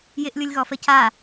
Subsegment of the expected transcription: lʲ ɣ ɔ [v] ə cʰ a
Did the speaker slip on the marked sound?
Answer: yes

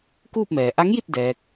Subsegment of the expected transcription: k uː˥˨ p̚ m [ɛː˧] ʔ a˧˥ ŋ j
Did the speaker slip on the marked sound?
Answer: yes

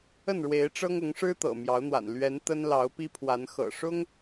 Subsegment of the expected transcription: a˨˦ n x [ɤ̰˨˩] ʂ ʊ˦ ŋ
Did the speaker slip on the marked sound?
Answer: no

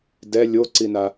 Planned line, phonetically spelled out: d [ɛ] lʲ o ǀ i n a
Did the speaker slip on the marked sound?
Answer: no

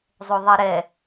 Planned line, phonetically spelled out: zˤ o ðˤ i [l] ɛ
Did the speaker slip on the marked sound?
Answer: yes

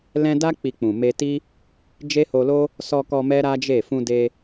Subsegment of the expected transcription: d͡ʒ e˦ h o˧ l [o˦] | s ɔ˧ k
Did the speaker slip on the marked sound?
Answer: no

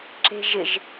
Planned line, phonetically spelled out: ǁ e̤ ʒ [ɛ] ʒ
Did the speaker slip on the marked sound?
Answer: yes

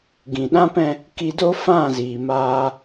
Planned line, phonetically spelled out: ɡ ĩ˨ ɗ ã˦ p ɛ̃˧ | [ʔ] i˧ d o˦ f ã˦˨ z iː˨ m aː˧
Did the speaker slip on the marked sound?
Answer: yes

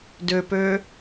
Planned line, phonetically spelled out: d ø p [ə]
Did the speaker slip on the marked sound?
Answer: yes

